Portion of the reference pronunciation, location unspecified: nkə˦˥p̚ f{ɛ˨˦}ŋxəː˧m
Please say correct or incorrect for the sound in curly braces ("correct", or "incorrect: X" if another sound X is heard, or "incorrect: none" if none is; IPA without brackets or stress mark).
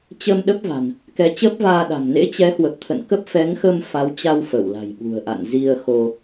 correct